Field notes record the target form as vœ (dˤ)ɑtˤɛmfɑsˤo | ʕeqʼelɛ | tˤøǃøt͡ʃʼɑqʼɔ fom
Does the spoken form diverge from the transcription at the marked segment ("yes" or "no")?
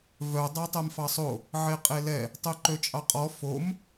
no